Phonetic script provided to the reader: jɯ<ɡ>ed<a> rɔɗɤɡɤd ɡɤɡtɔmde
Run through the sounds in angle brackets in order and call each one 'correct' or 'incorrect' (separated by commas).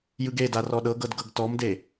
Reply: correct, correct